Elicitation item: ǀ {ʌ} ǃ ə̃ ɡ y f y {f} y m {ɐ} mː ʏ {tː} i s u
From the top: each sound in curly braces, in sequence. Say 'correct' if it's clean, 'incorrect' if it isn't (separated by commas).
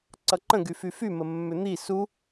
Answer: correct, correct, incorrect, incorrect